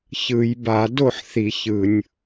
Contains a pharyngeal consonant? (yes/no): yes